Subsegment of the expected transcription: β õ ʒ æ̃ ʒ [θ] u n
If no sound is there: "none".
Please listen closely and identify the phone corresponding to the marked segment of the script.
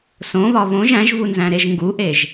v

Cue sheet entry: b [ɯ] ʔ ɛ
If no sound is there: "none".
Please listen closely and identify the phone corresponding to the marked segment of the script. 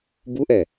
u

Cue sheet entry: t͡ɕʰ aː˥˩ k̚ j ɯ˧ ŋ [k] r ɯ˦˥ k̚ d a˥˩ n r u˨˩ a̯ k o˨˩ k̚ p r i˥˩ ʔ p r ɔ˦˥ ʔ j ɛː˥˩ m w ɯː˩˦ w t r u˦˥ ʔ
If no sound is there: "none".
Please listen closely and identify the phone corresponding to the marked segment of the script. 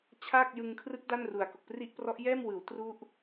kʰ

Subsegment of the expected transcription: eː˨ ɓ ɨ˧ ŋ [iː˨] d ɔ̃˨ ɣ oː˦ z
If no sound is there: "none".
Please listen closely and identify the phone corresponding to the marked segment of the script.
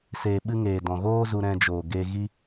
eː˨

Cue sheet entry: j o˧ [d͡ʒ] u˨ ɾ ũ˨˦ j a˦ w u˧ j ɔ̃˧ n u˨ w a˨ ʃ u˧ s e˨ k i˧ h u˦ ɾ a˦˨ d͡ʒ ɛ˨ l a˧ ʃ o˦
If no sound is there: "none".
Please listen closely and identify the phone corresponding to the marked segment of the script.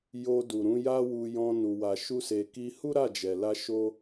d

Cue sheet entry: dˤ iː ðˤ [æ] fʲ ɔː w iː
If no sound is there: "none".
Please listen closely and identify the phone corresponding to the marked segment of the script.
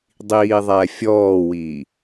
æ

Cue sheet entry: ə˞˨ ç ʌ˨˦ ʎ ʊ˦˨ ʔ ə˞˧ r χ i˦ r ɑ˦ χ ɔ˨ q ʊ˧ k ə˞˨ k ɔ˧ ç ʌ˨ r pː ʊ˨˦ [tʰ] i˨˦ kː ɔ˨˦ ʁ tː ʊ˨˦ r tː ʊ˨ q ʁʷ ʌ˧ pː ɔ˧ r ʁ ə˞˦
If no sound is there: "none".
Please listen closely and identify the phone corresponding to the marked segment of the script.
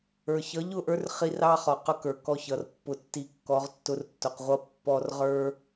tː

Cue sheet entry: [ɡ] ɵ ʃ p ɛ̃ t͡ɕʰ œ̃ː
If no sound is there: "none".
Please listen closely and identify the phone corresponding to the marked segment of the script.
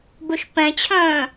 b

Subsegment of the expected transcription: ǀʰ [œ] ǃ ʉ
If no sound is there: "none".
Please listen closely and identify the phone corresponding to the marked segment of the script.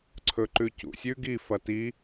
ɵ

